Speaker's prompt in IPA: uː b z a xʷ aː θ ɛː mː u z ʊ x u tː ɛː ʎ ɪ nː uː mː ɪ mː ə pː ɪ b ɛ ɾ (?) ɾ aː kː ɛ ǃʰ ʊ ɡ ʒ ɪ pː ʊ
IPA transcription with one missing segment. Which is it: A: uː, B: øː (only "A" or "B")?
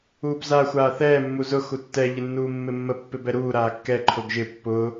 A